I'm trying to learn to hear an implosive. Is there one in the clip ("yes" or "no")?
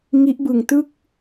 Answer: no